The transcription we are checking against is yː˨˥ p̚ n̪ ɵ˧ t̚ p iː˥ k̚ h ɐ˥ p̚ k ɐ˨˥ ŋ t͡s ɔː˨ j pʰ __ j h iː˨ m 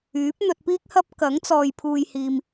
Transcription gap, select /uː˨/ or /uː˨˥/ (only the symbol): uː˨